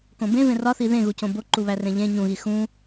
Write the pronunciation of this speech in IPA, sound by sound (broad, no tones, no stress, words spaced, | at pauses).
kõbẽvẽ rɒθi ðẽɣucõ boǃuβærẽ ʎẽ ɲũɣi xũ